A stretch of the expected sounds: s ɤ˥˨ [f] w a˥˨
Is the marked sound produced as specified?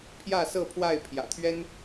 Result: no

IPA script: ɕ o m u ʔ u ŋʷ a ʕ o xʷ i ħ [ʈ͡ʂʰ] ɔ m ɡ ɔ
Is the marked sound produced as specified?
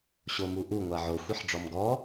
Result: no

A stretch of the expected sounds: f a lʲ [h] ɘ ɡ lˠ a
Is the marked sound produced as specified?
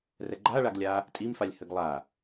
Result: yes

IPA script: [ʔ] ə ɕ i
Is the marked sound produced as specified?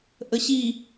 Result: yes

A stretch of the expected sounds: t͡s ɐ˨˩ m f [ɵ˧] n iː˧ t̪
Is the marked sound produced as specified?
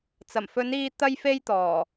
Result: no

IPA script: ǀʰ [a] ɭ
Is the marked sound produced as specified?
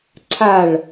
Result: yes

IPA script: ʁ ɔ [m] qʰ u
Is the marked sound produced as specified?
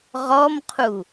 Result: yes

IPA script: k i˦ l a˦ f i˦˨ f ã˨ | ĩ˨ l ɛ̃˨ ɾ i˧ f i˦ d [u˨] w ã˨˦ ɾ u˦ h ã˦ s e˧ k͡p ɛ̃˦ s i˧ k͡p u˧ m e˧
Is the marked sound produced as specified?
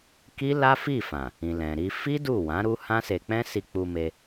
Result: no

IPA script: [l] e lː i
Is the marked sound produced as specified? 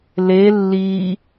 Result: yes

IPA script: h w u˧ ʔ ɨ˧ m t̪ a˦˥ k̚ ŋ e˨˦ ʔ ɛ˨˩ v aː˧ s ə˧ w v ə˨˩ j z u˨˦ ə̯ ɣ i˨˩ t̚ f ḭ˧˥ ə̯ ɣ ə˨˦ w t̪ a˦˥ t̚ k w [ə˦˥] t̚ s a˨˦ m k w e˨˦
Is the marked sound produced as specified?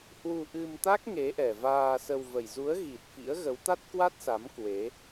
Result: no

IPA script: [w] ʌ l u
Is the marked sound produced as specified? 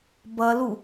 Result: no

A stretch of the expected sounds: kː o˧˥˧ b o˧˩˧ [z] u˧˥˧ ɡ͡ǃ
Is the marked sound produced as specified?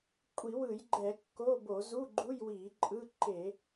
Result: yes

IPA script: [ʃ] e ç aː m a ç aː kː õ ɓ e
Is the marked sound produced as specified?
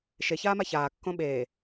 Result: yes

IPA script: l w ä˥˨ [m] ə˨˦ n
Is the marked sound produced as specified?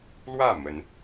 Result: yes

